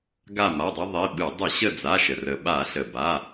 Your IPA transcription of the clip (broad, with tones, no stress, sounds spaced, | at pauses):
ɡ a˦˨ m a˩˧˩ dˤ e˦ ðˤ i˩˧˩ ɓ ɯ˧˩˧ dˤ ɯ˧˩˧ ɕ ə˦˨ d͡z a˩˧˩ ʃ ə˩ r ə˩ ɓ a˧˩˧ ɬ ə˩ b a˩˧˩